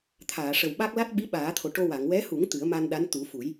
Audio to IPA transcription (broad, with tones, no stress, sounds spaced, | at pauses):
t̪ʰ aː˨˩˨ ʂ ə˨˩ w ɓ a˦˥ k̚ l a˦˥ t̚ ɓ i˧˥ ɓ aː˨˩˦ t̪ʰ o˨˩ ʈ o˧ w a˨˩˨ ŋ w ɛ˧˥ h u˨˩˦ ŋ t̪ ɨ˨˩˦ ə̯ m a˧ n ɗ a˧˥ n t̪ u˨˩˦ f u˨˩˦ j